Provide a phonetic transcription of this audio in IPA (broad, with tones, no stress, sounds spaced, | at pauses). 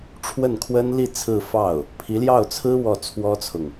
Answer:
ʈ͡ʂʰ w ə˥˩ n kʰ w ə˥ n l i˥˧ t͡sʰ ɹ̩˥˧ f ɑ˥˩ ʊ̯ | pʰ i˧˥ l j ɑ˥˩ ʊ̯ t͡sʰ ɹ̩˥ w ɔ˥˩ t͡sʰ w ɔ˥ t͡sʰ ʊ˨ ŋ